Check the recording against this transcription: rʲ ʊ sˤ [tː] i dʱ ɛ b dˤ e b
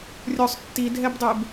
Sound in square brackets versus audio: correct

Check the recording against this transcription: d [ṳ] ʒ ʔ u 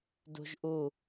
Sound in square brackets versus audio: correct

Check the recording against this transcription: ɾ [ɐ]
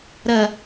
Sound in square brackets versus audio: correct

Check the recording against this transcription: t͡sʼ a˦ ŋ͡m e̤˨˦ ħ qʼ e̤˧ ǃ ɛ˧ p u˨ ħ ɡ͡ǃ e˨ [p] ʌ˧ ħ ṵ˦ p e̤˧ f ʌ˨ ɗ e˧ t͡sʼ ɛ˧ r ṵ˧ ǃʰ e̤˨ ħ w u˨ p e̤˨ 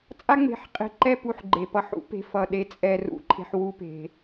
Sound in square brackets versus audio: correct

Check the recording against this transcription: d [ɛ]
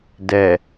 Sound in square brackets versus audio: correct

